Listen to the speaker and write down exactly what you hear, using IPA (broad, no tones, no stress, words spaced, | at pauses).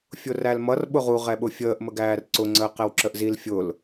fʲʊrælmʌr ɓʊʁu ʁɛɓʊfʲəːʔ məɡæːrǀʊ ŋ͡ǀəːqɛwǁəʔzil fʲʊl